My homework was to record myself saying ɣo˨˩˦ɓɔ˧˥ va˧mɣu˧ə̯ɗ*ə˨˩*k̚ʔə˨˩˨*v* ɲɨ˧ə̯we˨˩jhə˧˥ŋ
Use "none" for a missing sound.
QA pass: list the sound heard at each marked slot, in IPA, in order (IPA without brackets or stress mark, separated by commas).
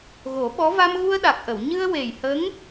a˨˩, w